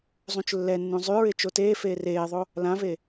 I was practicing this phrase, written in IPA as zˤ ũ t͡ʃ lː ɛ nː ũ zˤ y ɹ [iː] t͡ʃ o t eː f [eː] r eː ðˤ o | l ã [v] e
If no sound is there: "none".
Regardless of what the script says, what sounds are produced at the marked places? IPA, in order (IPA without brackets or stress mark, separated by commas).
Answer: ɪː, eː, v